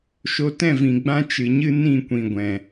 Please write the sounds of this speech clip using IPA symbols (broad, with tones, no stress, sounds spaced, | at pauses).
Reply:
ʃ o˧ t ɛ̃˦˨ v ĩ˨ ɡ͡b ã˦ t͡ʃ ɨ˨ ɲ ɨ˦ n ĩ˦˨ kʷ ĩ˨ ɡʷ ɛ̃˨